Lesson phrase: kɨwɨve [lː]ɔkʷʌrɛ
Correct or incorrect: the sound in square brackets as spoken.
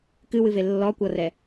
correct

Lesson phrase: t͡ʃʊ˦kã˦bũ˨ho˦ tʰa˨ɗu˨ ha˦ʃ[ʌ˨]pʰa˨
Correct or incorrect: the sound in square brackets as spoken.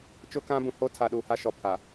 incorrect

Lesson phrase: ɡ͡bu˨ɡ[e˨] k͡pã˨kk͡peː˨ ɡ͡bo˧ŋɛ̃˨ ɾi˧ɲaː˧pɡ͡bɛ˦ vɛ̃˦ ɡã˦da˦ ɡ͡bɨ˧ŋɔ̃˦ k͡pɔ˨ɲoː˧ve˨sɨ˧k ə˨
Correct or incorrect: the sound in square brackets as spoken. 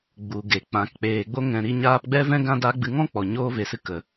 correct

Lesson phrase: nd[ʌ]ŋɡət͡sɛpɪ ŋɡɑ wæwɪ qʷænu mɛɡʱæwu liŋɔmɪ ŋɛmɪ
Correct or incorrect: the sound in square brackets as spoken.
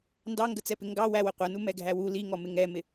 incorrect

